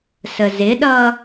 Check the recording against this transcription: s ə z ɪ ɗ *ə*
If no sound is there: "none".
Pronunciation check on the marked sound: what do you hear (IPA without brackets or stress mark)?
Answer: ʌ